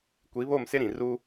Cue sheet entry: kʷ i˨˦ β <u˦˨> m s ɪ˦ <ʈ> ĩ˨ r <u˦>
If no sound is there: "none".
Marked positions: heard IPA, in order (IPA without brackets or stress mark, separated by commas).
o˦˨, ɾ, u˦